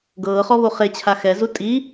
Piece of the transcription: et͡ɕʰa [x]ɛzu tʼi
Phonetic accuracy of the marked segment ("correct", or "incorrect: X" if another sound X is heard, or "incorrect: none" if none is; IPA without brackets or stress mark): correct